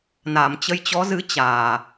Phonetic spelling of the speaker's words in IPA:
na˨˩mt͡ɕə˧jt͡ɕɔ˨˦zɨ˨˦ t͡ɕaː˨˩

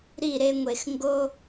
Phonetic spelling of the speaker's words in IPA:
ɾi˦˨ɾe˦ŋʷe˨x ŋɡo˦

